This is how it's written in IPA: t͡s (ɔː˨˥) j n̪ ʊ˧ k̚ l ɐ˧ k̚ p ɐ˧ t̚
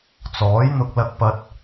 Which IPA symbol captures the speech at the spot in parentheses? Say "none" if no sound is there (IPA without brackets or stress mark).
ɔː˨˥